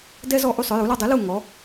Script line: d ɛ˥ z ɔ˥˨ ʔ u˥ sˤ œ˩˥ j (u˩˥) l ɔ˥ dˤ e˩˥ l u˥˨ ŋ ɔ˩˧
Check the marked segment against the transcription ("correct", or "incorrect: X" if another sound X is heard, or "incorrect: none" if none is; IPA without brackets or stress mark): correct